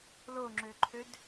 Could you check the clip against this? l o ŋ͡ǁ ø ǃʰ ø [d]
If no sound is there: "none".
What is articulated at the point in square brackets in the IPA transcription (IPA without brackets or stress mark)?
d